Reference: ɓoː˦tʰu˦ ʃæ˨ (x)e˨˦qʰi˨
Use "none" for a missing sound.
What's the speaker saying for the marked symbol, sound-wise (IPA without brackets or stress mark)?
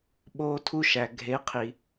ɡʱ